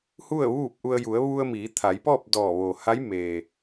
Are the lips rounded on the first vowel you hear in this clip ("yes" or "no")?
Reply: yes